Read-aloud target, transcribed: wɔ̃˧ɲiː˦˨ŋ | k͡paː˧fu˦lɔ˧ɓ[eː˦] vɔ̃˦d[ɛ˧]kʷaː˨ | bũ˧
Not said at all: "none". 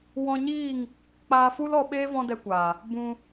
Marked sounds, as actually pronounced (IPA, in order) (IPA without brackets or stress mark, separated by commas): eː˦, ɛ˧